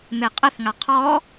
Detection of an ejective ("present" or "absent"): present